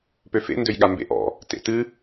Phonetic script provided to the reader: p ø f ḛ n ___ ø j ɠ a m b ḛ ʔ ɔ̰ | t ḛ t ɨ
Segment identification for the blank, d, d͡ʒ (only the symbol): d